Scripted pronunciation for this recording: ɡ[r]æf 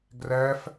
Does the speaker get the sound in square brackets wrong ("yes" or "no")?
no